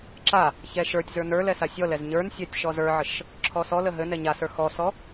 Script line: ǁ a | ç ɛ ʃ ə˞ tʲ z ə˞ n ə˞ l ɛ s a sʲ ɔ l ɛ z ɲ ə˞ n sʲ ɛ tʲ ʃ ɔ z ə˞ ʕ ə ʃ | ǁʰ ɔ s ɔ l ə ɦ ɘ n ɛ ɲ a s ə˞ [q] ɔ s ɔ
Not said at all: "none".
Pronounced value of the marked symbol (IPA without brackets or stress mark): x